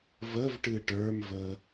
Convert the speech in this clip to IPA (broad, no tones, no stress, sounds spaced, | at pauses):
v ə v ʈ ɨ ʈ ə˞ m v ə